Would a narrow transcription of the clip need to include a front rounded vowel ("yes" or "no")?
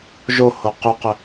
yes